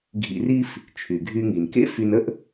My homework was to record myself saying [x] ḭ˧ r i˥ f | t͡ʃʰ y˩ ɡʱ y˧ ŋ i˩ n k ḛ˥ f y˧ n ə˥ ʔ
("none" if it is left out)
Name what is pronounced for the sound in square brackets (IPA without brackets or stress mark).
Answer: ɡʱ